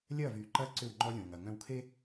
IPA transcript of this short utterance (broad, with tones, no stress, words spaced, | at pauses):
lʲɐː˦˨vyː˨ǃɐː˦ ǀʏ˦˨wŋ͡ǃɔ˦lʲõː˨ŋɐ˨ ŋœ̃˦wkʰe˦